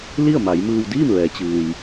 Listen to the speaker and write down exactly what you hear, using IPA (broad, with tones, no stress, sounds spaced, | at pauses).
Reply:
l i˥˨ ə̯ m a˩˧ j m ɯː˧ w d iː˥˨ m ʋ ɛː˩˧ t͡ɕ ɯː˩ j